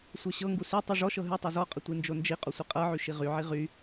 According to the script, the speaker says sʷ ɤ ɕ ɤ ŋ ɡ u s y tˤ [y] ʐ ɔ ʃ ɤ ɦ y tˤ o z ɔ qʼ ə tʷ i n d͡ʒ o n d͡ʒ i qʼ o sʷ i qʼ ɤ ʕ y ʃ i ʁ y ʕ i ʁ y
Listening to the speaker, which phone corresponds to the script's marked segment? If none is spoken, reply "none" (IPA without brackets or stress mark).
y